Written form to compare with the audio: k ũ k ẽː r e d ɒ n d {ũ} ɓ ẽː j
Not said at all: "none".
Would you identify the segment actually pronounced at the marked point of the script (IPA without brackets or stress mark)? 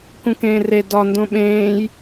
õ